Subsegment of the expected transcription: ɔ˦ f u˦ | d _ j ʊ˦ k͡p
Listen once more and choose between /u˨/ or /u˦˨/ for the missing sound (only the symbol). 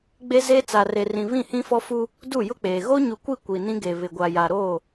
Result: u˦˨